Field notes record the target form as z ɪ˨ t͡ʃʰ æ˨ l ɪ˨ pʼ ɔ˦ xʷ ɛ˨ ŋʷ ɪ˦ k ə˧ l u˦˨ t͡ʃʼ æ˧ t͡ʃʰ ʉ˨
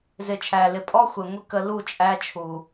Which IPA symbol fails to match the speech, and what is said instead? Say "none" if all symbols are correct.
ʉ˨ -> u˨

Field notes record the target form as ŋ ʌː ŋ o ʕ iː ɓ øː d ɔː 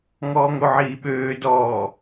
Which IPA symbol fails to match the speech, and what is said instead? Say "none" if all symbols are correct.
ʌː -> ɔː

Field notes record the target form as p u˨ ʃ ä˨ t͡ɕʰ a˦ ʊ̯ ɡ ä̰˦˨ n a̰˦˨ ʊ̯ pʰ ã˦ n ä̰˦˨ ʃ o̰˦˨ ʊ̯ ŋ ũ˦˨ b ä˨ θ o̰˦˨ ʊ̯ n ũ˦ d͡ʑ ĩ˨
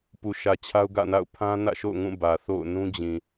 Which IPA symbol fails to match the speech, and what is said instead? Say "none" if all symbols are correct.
none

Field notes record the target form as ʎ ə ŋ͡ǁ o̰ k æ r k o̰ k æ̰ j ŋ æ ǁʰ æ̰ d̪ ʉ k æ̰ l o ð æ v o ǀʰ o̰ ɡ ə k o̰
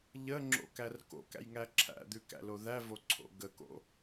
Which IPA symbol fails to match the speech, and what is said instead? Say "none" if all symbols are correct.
none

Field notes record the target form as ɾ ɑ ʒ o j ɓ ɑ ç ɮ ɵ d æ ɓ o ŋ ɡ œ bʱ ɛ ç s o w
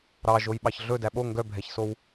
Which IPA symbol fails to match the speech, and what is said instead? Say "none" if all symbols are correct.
none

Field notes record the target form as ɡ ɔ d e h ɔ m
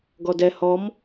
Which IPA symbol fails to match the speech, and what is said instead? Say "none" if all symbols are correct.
e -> ɛ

